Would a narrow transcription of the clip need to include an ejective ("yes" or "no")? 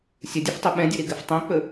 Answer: no